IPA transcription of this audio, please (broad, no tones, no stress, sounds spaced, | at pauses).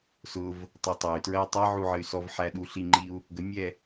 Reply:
s ʊ v | tˤ ʌ tˤ ɛ y̯ t ɹ ɜ y̯ tˤ ɛ ʕ u ʕ ə y̯ s ɔ v ħ æ ɗ u ɬ i ŋ͡ǃ i u̯ | ɡ ə mʲ ɛ